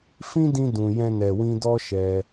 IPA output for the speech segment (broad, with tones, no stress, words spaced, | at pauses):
fĩ˦dĩ˧ dũ˨ jɛ̃˧nɛ˨wĩ˧dɔ˦ ʃɛ˧